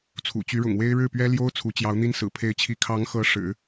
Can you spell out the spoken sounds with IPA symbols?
t͡sʰ ṵ˨˩ t͡ɕ y˧˥ ɻ ʊ̰˨˩ ŋ w e˥ ɪ̯ ɻ ɻ̩˥˩ p ɥ ɛ˥ l j o˥ ʊ̯ t͡sʰ u˧˥ t͡ɕ j ɑ˧˥ ʊ̯ n̪ i˥ n s ɹ̩˨˩ pʰ e˧˥ ɪ̯ t͡ɕʰ i˧˥ kʰ ɑ˧˥ ŋ x ɤ˧˥ ʂ ɻ̩˨˩˦

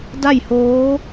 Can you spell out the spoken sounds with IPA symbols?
d a˥˨ j h oː˧˥

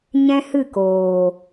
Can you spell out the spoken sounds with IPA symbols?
ɲ ɛ̃˦ h ɨ˦˨ k oː˨

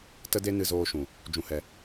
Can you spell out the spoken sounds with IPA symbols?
t ə˦ d e˦ n ɨ˧ z oː˧ ʃ ũ˨ | d͡ʒ ũ˧ h ɛ˧

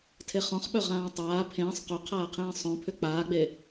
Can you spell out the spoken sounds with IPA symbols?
tʰ e χ ɔ̃ χ ɓ œ ʁ ãː tˤ aː pʰ ẽː sˤ q ʏ qʰ aː qʰ ẽː sˤ œ̃ pʰ ʏ k͡p aː ɡ͡b e

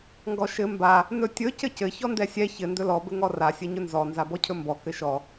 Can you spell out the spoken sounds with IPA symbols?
ŋ ɡ ɔ ʃ ɘ m b a | n ɵ tʲ ɵ c ɘ c ɘ ç ɔ n d ɛ sʲ ɛ ç ɘ n d ɵ l ɔ b ɘ ŋ ɔ r a sʲ ɘ ɲ ɵ n z ɔ n z a b ɔ cʰ ɵ m b ɔ k ɘ ʃ ɔ

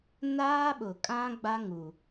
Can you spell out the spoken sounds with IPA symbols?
n aː˦ ɓ ʊ˨ kʼ ã˦ ɡ͡b a˦ ŋ u˨

